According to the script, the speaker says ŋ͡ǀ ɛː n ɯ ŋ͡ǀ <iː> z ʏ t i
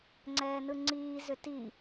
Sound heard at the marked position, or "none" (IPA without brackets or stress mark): iː